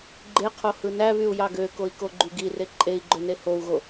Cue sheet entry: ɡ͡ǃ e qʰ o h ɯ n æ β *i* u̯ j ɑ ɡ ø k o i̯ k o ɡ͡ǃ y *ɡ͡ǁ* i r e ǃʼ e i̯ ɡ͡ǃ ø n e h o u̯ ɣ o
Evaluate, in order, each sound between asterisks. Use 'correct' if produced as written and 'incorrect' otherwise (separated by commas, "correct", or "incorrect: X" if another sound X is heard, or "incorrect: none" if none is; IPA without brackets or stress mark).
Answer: incorrect: y, incorrect: ɡ